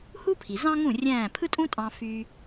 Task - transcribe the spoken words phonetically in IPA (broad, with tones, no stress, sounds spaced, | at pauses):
h u˥ pʰ i˩ z ɑ̃˥ ŋ ũ˥˩ rʲ æ̃ː˥˩ pʰ ɯ˥ tʼ ũ˥ tʼ ɑ̃˧ f yː˧